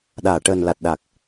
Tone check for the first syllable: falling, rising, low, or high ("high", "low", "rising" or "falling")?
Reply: low